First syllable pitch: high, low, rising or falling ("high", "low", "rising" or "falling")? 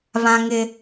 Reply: high